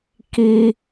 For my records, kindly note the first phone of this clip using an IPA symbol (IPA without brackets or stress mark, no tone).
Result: k